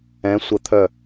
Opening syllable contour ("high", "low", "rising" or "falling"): rising